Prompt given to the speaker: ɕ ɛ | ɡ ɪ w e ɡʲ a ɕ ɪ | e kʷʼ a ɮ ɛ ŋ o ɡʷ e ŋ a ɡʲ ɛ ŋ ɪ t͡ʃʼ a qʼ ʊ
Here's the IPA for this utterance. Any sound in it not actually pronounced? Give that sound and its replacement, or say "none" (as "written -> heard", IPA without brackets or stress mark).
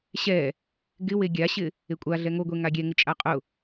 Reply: none